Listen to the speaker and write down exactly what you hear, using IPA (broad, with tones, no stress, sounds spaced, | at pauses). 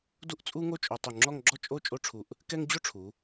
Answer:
d u˥ ʔ t͡sʼ u˥ ŋ o˥ t͡ʃʼ o˧ tˤ u˧˩ ŋ͡ǁ ɔ˥˧ ŋ ɡ͡ǁ ɔ˥˧ t͡ʃʼ o˥˧ t͡ʃʼ o˥ ʈ͡ʂʰ u˧˩ ʔ | k ɛ˥ ŋ d͡ʑ o˥ ʈ͡ʂʰ u˩˧